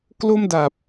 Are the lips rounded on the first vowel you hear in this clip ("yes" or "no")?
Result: yes